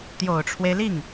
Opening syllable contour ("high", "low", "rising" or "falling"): low